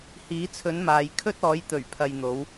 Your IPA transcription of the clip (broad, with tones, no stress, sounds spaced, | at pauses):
h iː˨˥ t͡sʰ ɵ˨˥ n m aː˨ j kʰ ɵ˥ t̚ ɔː˨˥ j t̪ ɵ˨˩ ɥ pʰ ɐ˨ j n̪ o˨˧ w